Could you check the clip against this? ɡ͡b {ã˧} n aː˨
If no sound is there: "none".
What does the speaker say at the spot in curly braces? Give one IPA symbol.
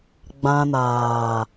ã˧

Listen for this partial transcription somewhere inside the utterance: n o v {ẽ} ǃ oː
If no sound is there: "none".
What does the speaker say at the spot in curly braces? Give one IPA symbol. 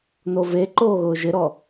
e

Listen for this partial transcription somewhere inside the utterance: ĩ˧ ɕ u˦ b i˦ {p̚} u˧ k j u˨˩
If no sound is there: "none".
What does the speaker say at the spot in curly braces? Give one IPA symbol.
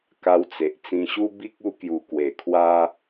k̚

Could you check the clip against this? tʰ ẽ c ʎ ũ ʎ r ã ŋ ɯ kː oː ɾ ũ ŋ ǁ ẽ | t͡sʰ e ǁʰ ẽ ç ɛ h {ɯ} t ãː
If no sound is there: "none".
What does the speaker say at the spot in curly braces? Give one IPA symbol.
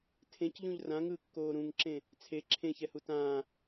u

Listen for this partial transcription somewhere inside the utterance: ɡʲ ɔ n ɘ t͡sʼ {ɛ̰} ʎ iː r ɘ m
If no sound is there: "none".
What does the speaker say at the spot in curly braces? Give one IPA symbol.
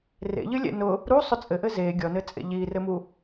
ḛ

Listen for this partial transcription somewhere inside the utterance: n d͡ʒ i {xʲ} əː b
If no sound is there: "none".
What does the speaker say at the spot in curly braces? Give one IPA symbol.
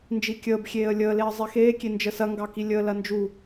kʲ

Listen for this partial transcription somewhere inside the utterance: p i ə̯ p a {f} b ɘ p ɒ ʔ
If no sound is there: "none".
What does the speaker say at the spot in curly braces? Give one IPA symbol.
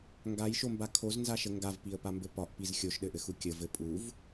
m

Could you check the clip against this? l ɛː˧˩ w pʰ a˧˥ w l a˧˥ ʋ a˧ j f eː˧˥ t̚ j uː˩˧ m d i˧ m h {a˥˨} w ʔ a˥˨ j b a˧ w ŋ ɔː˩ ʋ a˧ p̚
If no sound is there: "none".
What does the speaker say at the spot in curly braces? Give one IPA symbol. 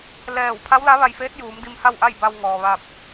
a˥˨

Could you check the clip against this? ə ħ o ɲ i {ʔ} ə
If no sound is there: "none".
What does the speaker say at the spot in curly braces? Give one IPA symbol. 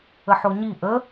ʔ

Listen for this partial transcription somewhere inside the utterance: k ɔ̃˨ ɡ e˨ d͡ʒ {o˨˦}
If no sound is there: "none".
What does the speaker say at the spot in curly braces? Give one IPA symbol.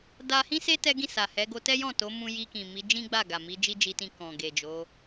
o˨˦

